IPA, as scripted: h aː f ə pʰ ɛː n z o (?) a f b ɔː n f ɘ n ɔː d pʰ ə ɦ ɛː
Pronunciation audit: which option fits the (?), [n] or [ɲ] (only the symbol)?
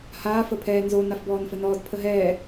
n